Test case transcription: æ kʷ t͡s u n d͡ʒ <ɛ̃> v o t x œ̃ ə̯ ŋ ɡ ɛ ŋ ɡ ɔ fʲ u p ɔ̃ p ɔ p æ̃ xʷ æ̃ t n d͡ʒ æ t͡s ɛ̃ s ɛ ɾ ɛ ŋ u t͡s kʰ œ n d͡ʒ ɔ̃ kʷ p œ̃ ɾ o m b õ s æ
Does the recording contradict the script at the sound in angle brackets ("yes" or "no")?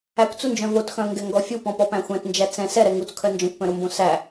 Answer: yes